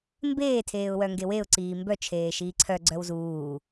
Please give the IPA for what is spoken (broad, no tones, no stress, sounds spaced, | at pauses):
m b eː tʰ eː ʊ̯ w œ ŋ ɡ e w e ʊ̯ ǀ iː m b œ t͡ʃʰ eː ʃ iː ǀʰ œ ɡ͡ǀ œ w z uː